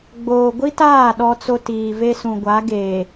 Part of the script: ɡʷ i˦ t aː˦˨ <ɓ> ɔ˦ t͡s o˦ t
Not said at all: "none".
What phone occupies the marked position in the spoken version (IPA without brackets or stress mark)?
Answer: ɗ